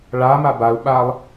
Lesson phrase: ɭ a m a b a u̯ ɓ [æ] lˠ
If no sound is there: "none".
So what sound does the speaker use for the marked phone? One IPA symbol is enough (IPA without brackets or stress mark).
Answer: a